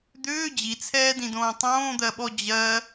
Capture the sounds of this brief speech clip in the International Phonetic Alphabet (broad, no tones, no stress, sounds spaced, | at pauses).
d̪ ʏː d͡ʑ i t͡sʰ ɛː d ĩ d õː tˤ õː d̪ ɜ ɓ ɔ d͡ʑ ɜ